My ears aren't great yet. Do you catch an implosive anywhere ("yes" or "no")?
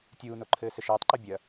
no